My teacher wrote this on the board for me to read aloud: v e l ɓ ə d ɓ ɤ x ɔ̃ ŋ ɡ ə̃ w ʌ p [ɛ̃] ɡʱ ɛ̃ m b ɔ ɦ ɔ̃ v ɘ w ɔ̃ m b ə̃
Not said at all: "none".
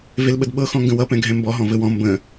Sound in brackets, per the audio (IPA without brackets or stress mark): ɛ̃